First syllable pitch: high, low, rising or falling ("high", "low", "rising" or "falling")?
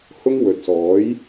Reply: high